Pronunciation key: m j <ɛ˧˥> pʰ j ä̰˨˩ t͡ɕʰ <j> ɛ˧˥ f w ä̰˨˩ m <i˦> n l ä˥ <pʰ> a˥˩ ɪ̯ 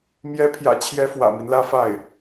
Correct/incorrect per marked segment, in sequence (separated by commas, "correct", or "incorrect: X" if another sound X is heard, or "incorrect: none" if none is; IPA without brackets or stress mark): correct, correct, correct, incorrect: f